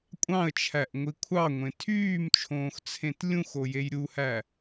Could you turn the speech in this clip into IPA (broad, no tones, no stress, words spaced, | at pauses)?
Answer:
kʷʼɑ̃ə̯t͡ʃʰæʔŋʷi kʷʰɑŋʷẽ tʰyːmt͡ʃʰõːxt͡sʰẽt lʲũxojej ɾʲuhæ